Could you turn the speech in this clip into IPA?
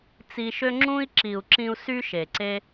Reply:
t͡s i˧ ʃ ø˦ ŋ͡ǁ ũ˦ i̯ ǁ i˨ u̯ ǁ ĩ˧ u̯ s y˦ ʃ e˨ ǀ e˦

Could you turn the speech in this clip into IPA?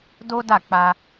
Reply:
d o˦ d a˦˨ k͡p a˧

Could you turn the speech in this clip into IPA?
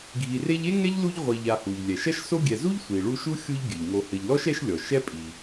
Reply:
ɡʱ i˨ r e˦ ʎ e˥ ŋ ɛ˥ ʎ l u˦ ʎ ʁʷ i˨ ʎ a˨ h u˩ ʎ lʲ ɛ˩ ʃ ɐ˦ ʃ s o˦ ɡʲ ɛ˨ z u˥ ʎ sʷ i˩ ɭ u˦ ʃ u˥ xʲ u˦ ʎ ɡʲ ɘ˩ ʎ ŋ o˨ h ɘ˨ ʎ l ɔ˥ ʃ ɛ˦ ʃ lʲ ɔ˩ ʃ ɛ˦ pʼ i˩

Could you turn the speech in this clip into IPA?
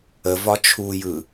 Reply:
ə v ɒ t͡ʃʰ u j ɯ

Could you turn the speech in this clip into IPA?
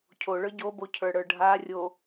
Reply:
cʰ o ɭ ə˞ ɟ o b o cʰ ə˞ ɽ ə˞ ɖʱ a rʲ o

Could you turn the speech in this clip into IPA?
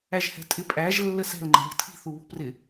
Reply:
æ ʒ h ɛ̤ tʼ ɪ pʼ æ ʒ lː ə s ɛ̤ l ŋ͡ǃ ɛ̤ ʎ ɪ tʰ i̤ θ u β ṳ p r ɪ

